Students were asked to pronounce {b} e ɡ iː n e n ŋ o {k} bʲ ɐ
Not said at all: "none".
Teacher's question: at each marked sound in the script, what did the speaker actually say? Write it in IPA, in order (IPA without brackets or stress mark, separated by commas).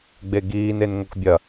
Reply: ɡ͡b, k